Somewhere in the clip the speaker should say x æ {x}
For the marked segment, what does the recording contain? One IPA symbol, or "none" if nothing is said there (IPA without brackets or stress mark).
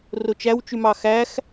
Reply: x